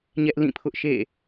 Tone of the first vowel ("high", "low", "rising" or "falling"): high